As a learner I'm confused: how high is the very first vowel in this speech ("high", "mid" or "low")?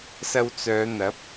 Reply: low